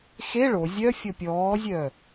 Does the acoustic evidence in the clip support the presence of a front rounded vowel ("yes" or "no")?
yes